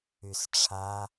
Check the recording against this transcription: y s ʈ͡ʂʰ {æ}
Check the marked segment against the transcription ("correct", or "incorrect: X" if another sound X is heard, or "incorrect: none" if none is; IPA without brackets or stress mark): incorrect: a